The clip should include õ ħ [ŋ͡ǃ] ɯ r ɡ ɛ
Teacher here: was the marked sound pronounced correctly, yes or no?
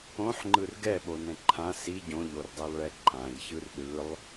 yes